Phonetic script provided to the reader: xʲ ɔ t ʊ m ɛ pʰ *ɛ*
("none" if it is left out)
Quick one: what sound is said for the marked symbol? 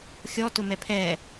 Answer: ɛ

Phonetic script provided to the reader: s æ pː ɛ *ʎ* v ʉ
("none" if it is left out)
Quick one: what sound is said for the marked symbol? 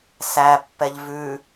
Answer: ʎ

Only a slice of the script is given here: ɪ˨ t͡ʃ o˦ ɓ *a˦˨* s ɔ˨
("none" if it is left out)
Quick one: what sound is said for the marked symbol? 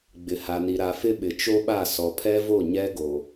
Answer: a˦˨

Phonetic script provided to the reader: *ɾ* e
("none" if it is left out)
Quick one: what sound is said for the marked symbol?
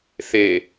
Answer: θ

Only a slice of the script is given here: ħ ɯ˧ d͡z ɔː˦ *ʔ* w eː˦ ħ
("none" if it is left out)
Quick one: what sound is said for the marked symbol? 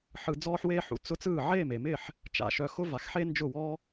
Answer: ħ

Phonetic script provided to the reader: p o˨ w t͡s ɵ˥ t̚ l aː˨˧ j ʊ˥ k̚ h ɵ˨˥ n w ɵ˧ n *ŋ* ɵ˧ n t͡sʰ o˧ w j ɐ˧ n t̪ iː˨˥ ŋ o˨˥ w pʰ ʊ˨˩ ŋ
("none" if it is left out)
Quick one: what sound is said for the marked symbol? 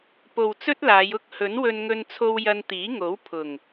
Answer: ŋ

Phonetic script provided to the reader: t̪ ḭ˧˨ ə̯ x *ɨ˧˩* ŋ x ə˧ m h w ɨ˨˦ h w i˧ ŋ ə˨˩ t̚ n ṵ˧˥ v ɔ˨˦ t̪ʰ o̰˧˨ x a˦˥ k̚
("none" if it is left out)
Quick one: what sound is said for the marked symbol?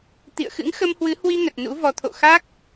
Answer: ɨ̰˧˥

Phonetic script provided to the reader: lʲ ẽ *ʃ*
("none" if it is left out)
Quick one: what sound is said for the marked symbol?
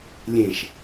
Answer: ʃ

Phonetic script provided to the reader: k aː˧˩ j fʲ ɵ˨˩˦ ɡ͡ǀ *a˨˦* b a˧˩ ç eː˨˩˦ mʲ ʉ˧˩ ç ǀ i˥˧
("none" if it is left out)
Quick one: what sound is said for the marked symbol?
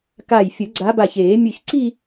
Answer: a˨˦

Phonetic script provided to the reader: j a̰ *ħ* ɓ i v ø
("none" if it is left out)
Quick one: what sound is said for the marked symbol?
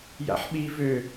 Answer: ħ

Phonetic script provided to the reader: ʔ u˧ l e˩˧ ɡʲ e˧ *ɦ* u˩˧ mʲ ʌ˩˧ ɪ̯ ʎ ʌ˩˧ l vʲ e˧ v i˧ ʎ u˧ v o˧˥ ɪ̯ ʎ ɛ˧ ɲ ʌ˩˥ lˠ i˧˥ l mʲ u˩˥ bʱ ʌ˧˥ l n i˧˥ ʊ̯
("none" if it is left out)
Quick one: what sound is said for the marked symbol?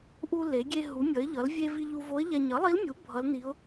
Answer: ɦ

